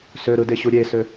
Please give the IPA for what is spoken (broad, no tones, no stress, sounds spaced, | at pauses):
s ø ɾ ɯ d e ɕ u ɾʲ e s ø